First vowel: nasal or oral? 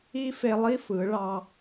oral